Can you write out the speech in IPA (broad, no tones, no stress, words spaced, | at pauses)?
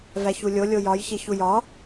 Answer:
væçulʲo lʲojɒj çeçujɒ